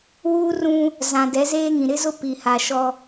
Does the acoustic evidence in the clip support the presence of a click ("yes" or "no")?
no